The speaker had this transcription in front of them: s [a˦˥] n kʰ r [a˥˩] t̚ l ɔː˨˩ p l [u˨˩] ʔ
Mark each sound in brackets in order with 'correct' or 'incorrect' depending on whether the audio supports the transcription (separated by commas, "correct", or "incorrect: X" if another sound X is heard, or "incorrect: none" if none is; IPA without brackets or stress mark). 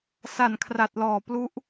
incorrect: a˨˩, incorrect: a˨˩, incorrect: u˦˥